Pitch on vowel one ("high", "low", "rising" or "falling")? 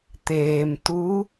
low